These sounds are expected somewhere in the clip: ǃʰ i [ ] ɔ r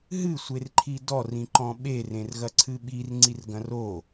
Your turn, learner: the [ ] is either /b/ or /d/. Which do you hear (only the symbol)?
d